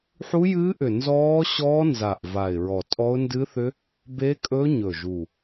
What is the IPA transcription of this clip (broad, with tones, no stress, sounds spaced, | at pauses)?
ħ u˦˥ j ɨː˦˥ ʔ ʏ˨˩ n z ɔː˦˥ ɕ ɔː˦˥ n z a˨˩ ʔ v a˨˩ ɪ̯ ɹ ɔ˨˩ tʼ ɔ˦˥ ʊ̯ n d ɨ˦˥ θ ʏ˦˥ | b e˦˥ kʼ ɵ˦˥ ɲ ɵ˨˩ ʒ u˨˩